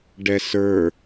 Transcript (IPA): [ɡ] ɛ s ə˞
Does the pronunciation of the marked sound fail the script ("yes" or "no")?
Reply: yes